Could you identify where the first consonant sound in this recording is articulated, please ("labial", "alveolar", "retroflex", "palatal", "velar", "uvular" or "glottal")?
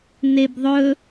alveolar